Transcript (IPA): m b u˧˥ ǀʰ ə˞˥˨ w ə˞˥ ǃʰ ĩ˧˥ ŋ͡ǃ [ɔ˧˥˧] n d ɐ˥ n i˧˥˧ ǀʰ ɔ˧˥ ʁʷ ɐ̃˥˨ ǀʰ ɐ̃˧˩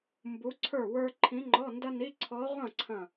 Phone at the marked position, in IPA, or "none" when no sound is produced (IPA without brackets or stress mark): ɔ˧˥˧